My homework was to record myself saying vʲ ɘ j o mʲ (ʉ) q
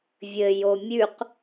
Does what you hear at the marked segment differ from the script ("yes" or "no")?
no